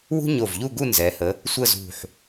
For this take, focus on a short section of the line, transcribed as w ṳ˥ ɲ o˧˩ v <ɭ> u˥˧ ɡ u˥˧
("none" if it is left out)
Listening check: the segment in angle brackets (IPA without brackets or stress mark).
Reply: ʎ